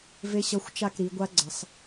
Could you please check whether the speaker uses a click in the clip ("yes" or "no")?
yes